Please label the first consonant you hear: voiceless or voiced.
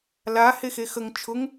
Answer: voiced